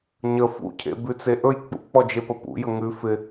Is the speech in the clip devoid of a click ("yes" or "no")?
yes